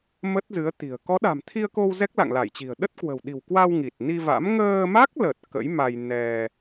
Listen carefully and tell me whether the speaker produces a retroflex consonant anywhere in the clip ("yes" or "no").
no